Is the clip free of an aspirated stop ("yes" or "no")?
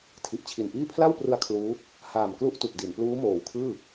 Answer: no